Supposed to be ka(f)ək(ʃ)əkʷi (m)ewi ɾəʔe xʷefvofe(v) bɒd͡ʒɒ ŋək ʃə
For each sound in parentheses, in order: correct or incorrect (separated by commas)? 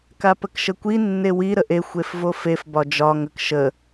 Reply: incorrect, correct, incorrect, incorrect